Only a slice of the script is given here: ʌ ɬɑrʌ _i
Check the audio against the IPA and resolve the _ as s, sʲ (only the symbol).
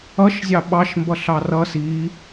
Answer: s